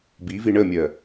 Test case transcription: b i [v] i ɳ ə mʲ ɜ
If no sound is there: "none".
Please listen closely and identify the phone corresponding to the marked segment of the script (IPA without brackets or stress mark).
v